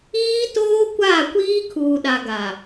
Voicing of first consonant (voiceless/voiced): voiceless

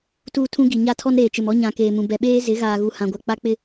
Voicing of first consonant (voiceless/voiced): voiceless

